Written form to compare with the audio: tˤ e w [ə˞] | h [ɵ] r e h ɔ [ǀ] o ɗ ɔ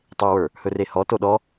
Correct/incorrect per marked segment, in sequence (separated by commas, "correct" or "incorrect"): correct, correct, incorrect